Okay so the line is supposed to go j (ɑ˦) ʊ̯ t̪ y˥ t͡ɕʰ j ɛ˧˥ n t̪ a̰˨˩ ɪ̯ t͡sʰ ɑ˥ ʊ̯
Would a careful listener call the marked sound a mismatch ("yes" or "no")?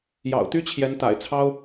yes